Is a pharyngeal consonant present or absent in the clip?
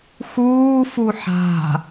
present